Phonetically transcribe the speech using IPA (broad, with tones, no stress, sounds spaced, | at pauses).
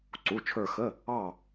ǀ u˩˧˩ t͡ʃʰ ə˞˦˨ x ə˧˥˧ | ɑ˦˨